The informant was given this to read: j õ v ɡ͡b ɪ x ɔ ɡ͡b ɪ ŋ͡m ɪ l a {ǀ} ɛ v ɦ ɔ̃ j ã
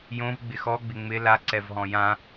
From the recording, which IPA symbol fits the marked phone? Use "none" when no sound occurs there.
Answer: ǀ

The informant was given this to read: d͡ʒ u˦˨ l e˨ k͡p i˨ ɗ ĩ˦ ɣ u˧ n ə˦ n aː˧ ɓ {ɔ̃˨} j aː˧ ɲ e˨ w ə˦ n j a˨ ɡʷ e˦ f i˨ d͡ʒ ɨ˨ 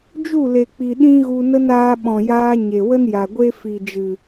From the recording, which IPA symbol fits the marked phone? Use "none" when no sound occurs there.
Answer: ɔ̃˨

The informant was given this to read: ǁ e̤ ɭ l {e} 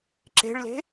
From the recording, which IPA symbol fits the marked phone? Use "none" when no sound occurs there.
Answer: e̤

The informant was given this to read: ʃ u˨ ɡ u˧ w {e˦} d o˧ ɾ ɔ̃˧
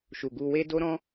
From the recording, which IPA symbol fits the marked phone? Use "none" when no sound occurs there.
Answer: e˦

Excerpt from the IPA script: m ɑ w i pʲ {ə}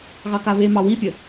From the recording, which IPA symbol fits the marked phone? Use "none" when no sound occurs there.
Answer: ə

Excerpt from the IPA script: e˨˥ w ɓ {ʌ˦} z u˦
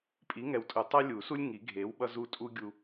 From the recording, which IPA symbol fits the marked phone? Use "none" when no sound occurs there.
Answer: ʌ˦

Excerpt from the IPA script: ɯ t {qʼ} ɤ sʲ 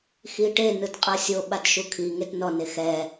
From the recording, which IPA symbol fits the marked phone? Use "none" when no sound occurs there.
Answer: qʼ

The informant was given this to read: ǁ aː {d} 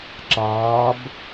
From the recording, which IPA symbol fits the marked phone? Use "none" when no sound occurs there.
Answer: b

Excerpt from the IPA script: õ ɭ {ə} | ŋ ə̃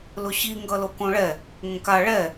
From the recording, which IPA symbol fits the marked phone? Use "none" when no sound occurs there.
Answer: ɛ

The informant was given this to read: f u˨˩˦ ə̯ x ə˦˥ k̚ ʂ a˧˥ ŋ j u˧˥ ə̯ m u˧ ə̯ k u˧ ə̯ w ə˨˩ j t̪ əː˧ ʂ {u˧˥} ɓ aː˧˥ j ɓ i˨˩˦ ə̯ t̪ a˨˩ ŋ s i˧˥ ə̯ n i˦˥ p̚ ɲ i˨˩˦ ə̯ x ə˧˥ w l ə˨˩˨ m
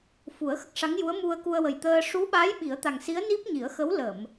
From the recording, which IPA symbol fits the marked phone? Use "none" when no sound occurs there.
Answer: u˧˥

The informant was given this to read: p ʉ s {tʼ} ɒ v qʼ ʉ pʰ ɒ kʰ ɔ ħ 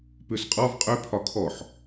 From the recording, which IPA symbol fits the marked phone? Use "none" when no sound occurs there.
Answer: qʼ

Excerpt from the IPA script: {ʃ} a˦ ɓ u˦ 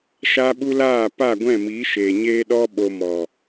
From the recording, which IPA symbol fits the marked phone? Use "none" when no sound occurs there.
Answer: ʃ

